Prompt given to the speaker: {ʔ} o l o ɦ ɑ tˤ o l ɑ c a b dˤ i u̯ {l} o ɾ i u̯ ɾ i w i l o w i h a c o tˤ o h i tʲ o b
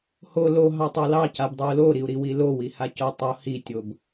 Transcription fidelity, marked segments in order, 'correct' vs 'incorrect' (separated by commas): incorrect, correct